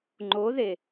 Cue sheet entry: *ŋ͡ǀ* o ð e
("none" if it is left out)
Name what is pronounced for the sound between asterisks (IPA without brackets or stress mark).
ŋ͡ǃ